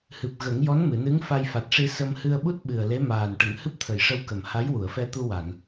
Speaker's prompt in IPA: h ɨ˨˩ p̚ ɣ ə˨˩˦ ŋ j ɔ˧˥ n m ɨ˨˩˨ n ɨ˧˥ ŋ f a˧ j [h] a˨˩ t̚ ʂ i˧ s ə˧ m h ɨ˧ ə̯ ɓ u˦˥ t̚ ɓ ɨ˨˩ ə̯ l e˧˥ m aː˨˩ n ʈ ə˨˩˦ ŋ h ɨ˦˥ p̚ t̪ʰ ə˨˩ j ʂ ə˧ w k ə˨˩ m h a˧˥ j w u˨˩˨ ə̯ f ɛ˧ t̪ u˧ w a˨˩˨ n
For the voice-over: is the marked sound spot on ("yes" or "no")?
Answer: no